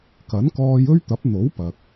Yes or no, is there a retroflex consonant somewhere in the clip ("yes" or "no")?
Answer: no